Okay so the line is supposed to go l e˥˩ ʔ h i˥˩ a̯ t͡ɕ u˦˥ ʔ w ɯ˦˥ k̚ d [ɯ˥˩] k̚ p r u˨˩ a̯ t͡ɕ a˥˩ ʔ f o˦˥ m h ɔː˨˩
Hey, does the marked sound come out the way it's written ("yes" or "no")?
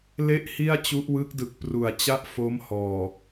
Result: no